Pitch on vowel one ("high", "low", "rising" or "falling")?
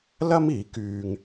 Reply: high